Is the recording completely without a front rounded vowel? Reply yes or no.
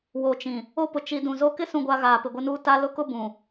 yes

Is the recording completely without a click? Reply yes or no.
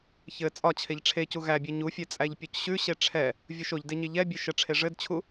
yes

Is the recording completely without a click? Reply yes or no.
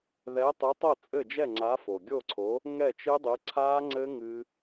no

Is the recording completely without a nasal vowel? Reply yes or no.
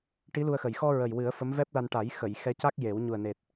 yes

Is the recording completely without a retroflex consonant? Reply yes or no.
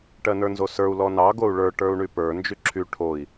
no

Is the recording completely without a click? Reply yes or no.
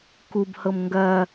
yes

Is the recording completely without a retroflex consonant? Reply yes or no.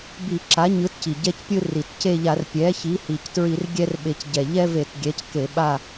yes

